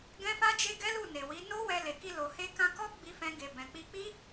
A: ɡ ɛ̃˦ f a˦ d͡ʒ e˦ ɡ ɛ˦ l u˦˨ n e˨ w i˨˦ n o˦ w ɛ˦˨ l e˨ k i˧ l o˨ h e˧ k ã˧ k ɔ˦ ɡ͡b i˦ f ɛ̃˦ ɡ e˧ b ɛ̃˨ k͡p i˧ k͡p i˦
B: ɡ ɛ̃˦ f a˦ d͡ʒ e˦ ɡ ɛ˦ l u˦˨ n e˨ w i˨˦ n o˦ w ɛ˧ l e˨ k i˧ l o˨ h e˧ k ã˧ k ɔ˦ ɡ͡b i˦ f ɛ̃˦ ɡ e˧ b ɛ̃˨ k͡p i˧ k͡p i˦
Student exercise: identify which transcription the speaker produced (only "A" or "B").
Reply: B